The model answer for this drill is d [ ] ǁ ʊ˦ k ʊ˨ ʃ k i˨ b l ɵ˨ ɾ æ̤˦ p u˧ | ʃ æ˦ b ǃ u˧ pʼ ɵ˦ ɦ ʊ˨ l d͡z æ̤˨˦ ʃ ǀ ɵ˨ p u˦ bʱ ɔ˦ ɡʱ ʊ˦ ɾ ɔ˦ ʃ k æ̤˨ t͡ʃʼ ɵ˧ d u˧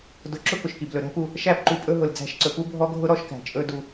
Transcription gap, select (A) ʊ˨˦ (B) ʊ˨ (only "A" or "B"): A